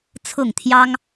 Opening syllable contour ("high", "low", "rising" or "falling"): falling